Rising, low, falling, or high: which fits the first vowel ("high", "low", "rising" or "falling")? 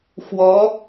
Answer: rising